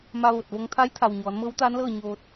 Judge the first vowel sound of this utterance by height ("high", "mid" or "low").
low